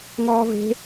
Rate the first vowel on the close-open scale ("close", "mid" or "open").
mid